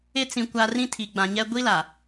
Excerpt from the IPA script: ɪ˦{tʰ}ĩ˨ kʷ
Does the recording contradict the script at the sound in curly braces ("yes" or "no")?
yes